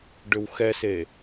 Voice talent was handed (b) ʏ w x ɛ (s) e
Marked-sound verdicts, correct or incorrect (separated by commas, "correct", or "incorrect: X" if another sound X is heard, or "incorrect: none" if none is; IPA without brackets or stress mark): incorrect: ɖ, correct